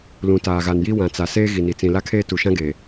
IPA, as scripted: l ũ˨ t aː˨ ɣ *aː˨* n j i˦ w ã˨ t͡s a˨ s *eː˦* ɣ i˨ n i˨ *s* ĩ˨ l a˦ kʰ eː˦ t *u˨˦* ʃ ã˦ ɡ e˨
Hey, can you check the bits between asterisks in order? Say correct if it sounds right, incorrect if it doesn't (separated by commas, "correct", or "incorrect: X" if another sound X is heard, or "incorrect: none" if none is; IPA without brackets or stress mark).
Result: incorrect: a˨, correct, incorrect: t͡s, incorrect: u˨